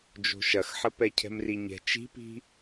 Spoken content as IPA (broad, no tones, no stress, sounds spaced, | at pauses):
d͡ʒ o̤ ʃ ɐ x ħ ə p ɛ cʰ ɛ̤ m r i ɲ ɛ̤ t͡ʃ i̤ p i̤